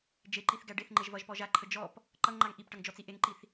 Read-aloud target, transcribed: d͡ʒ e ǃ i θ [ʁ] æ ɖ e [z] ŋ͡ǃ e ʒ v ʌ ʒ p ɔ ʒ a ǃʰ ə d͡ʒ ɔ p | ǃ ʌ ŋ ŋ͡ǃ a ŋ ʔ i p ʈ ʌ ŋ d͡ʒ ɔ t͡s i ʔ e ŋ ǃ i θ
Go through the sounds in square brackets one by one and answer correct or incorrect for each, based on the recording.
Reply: incorrect, incorrect

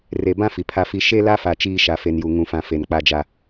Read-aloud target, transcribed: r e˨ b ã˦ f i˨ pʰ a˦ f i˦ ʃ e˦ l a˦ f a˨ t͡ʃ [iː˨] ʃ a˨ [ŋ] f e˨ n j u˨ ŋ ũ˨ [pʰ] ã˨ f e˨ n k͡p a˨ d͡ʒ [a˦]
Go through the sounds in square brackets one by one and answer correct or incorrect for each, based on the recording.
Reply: incorrect, incorrect, incorrect, incorrect

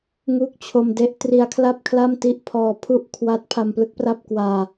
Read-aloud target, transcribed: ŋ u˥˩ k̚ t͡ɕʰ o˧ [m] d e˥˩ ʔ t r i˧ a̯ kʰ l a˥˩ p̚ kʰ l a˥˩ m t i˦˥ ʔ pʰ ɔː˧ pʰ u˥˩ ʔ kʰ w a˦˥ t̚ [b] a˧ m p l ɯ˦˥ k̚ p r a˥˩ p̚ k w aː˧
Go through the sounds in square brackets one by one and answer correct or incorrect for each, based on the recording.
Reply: correct, incorrect

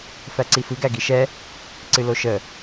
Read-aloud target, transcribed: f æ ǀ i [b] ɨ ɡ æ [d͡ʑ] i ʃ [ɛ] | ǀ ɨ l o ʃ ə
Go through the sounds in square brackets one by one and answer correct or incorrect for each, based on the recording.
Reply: incorrect, incorrect, correct

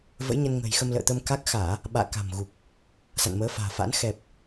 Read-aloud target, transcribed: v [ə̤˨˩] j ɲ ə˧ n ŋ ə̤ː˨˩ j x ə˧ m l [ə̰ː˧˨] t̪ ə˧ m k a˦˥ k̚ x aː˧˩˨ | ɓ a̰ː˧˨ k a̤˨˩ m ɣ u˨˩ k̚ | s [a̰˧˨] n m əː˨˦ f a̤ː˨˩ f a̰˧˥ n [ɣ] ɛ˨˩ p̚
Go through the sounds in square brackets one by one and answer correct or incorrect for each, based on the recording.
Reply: incorrect, correct, correct, incorrect

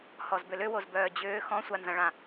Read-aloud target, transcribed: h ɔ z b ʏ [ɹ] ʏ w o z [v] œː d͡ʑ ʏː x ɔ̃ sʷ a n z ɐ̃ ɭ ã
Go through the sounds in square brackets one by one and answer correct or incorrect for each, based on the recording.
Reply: incorrect, incorrect

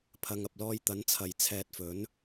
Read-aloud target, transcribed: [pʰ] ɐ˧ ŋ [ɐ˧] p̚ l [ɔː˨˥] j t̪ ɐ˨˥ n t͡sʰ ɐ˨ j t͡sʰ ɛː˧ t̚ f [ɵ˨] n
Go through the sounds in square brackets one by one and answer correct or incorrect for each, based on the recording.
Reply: correct, correct, incorrect, incorrect

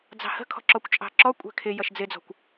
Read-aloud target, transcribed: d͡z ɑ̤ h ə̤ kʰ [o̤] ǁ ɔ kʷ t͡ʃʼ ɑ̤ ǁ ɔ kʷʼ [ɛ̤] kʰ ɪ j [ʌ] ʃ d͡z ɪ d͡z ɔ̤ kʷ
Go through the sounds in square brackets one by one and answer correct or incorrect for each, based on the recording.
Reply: incorrect, correct, correct

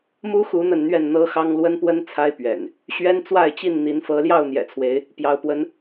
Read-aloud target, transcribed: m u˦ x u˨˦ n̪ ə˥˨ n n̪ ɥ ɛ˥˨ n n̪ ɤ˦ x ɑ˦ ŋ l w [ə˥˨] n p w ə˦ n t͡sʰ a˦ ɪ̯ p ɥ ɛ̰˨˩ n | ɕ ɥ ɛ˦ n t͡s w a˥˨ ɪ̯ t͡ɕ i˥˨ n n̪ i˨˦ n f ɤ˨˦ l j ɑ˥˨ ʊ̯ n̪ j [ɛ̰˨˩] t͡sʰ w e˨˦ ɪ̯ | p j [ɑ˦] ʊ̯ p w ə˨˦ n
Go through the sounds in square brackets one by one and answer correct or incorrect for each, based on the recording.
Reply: incorrect, correct, correct

